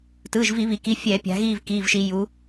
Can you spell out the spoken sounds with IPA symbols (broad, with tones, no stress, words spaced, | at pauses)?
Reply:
tɯː˩˧˩ʒvi˧˩˧βi˩˧ki˩˧˩ fʲɛː˧˩˧ pʲa̤˩˧ɣiː˦˨v kiː˩˧˩vʃi˩˧ ju˩˧